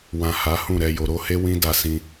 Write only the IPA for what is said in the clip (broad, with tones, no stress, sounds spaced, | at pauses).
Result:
w ã˨ h a˨˦ h ũ˦˨ ɾ ɛ˨ j o˨ ɾ o˨˦ h e˦ w ĩ˦ d a˦˨ s ĩ˧